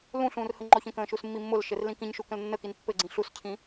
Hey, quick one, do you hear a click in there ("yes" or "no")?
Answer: yes